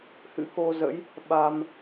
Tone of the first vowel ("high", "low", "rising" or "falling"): rising